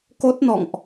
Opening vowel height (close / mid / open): mid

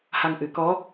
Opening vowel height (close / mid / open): open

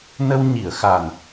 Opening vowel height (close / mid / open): mid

